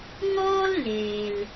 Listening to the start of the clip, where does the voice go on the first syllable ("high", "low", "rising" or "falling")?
high